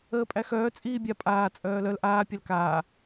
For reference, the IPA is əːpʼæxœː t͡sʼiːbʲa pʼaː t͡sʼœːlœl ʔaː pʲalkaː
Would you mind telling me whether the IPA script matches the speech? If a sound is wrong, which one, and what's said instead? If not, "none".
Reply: none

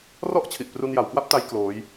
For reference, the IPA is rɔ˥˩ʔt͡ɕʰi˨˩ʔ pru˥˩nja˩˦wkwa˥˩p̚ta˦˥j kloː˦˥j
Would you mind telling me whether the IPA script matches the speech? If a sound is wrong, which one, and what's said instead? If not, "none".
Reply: u˥˩ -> u˧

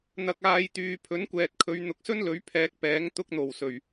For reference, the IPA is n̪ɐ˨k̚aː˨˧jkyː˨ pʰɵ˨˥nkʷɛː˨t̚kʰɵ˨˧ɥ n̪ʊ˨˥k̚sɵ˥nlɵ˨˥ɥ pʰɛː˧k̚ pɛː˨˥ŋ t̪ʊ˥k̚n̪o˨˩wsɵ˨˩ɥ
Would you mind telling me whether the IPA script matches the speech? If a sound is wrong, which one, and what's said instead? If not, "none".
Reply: k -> t̪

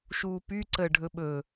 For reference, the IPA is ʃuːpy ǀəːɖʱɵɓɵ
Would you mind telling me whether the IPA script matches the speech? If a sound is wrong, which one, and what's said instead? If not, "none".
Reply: none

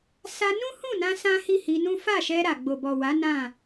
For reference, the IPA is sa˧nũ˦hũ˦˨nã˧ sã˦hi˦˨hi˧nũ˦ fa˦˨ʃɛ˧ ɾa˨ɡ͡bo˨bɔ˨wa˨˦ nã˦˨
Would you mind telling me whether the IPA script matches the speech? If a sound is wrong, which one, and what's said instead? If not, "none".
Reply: none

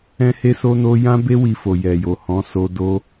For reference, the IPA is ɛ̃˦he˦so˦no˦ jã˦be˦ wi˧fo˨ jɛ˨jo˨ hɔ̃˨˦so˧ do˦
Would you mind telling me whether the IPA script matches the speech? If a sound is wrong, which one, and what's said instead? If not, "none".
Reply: none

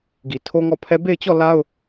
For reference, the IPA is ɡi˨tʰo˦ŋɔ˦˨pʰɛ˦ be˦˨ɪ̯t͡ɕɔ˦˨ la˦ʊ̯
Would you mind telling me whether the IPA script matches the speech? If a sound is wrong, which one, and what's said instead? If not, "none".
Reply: none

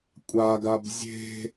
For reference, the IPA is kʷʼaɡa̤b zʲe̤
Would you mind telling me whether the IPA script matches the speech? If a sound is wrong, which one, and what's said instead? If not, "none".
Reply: a̤ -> a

